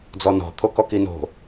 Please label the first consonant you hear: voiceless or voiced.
voiced